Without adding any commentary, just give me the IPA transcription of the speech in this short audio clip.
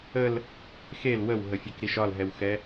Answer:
ə l | x e l w ə w ɦ ə fʲ ɛ k ɾ i ʃ ɒ l ɦ ɛ w x ɛ

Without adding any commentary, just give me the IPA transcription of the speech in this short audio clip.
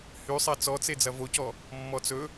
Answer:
h y sˤ ɛ t͡s ɔ t͡s e d͡z ɐ v o c ɔ | mː ɔ t͡s ɵ

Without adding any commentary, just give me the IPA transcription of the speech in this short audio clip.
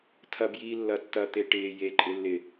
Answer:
tʰ ɐ b j iː lː ɐ tː ɐ t̪ e ʈ ɪː j e ǃʼ ɪ lː ɪ

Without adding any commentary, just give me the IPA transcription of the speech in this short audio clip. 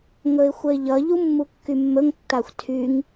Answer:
ŋ ɵ ɪ̯ xʷ ə ɪ̯ ʎ ʌ ʎ u mː u kː y mː ɵ ŋ tː a xʷ tʰ y ŋ

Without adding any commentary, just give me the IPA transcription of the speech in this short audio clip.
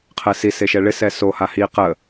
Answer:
qʰ ɛ s i s e ʃ ɛ ɭ ɪ s ɛ s o h a h i q ə

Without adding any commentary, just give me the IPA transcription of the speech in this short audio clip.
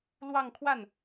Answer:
l w ɑ˥˧ ŋ kʰ w a˥˩ n

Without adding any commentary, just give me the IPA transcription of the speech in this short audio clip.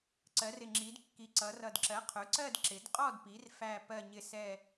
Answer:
ǀ ɜ˩˧ r ɪ˨˩ ŋ͡ǁ i˩˧ d kː i˩˧ ǀ ʌ˩˧ r ʌ˨˩ d ǁ ɜ˩˥ qʰ ʊ˩˥ ǀ ɜ˦˨ d ǁ ɪ˩˧ d qʼ ɔ˦˨ d p i˩˧ r f æ˦˨ p ɜ˦˨ ɲ ɪ˦˨ s ɛ˦˨

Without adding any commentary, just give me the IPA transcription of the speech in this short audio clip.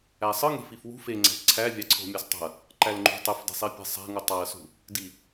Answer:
æ sˤ ɯ ŋ e̤ f i f w ṳ f e ŋ͡ǀ æ̤ p ǀʰ æ vʲ ɑ ǀʰ o̤ mʲ ɑ s tˤ o̤ ɐ̯ | ǃ æ l ŋ͡ǃ ṳ tˤ ø f d e̤ sˤ i pʲ e̤ sˤ æ̤ ŋ u tˤ ɑ ɐ̯ s ṳ | d i

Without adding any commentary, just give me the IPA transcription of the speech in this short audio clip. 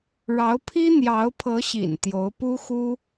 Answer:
ɻ ɑ˧˥ ʊ̯ pʰ i˥ n̪ j ɑ˧˥ ʊ̯ pʰ ɤ˧˥ ɕ ḭ˨˩ n t̪ j o˧˥ ʊ̯ p u˥ x u˥

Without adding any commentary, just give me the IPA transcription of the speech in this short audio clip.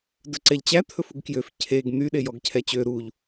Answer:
d ɵ ǀ ɛ ʎ t͡ɕ æ t̪ʰ ɵ f u ɡ k j ø f cʰ e ɡ n̪ y ɗ e j ɔ ɡ cʰ ɛ t͡ɕ ø ɾ u ʎ

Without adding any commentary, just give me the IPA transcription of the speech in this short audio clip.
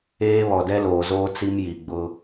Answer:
eː˦ β ɔ˨ d ɛ˦ l oː˨ z oː˦ t͡s i˦ m j i˨ ɡ͡b ʊ˦

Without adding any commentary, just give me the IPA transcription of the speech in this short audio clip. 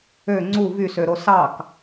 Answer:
ø ŋ͡ǀ u v y s ø ɾ o s ɑ k

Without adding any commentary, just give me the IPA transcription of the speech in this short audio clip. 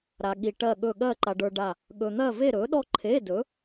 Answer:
ɾ a˧ ɠ i˧ ʈ ɜ˥˧ ɠ ɵ˥˧ ɠ ɜ˥˧ ǃ a˧ ɖ ə˞˧ ɖ a˥˧ | ɠ ɵ˧ n̪ ɜ˥˧ v e˥˧ ɾ ɵ˨˥ ɗ ɔ˥˧ ǃʰ e˧˥˧ d ɵ˨˥

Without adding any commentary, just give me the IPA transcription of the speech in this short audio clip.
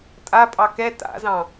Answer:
tʼ a pʼ ɑ k ɛ t a̰ z ɑ̃

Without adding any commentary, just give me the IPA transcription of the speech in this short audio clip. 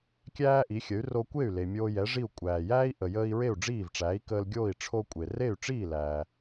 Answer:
kʲ æː˥ ʔ i˩˥ xʲ ə˩˥ y̯ r o˧ kʷ e˥˩ y̯ l e˩ mʲ oː˧ j ɛ˩˥ ʐ i˥˩ u̯ kʷʼ æː˩ j æː˥ i̯ ʔ ə˩ j əː˧ i̯ ɹ e˥˩ u̯ ɖ͡ʐ iː˥˩ v ʈ͡ʂ æː˩˥ i̯ k əː˧ l ɡʲ oː˥˩ i̯ ʈ͡ʂʰ o˧ kʷʼ e˩ r e˥˩ y̯ ʈ͡ʂ iː˥˩ l æː˩

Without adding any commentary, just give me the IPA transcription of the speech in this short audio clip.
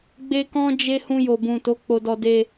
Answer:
ɡ͡b e˦ k ɔ̃˦ d͡ʒ e˦ h ũ˧ j o˨ b ũ˨ t o˨˦ k͡p o˧ d ɔ˧ d e˧

